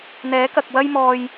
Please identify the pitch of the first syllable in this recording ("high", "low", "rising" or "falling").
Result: rising